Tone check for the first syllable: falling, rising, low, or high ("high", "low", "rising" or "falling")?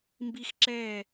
high